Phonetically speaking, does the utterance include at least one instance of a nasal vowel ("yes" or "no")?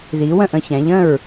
yes